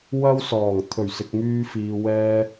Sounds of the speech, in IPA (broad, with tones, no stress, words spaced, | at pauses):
wɐ˥wsɔː˨˩ŋ t̪ʰɵ˨˩ɥsɪ˨k̚myː˧ fiː˨wɛː˧